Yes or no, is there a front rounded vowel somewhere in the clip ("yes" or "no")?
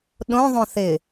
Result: no